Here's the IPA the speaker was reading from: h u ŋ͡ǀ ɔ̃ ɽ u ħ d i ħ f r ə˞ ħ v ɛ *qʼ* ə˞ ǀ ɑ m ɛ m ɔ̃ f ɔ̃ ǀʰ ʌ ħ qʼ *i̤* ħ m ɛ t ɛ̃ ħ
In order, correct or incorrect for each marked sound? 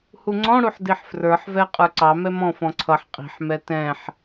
correct, correct

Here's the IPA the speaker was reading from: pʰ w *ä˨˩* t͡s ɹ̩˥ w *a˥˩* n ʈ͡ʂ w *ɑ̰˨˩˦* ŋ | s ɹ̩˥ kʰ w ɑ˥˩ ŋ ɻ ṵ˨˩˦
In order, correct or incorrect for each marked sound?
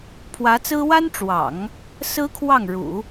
incorrect, incorrect, correct

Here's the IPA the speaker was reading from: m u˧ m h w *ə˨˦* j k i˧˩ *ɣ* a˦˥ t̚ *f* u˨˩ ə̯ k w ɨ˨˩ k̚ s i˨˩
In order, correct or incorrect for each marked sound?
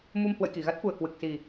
incorrect, correct, correct

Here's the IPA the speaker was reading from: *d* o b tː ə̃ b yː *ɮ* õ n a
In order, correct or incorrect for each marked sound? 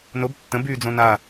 incorrect, incorrect

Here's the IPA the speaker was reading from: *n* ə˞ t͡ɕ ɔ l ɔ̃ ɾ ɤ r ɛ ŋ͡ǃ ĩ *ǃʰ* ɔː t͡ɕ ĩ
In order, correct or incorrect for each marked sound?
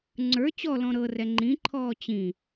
incorrect, correct

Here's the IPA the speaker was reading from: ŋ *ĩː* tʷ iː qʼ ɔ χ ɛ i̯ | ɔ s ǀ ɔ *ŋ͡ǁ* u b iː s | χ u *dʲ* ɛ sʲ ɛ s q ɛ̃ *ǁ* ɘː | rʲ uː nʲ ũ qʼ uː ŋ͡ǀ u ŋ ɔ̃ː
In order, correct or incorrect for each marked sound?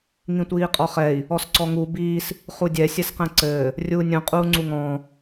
incorrect, incorrect, correct, incorrect

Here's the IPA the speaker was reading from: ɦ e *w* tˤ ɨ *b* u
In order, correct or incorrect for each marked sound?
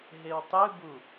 correct, correct

